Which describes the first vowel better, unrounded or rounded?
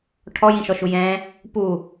rounded